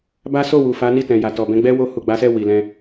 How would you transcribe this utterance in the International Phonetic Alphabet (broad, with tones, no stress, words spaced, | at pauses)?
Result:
ba˦ so˦˨wu˨fa˨˦ ni˦˨tɛ̃˨ja˨tɔ˨ bɛ̃˧ɡ͡bɛ˦ wo˧ hu˨ɡ͡ba˨˦sɛ˦˨ wi˨lɛ̃˧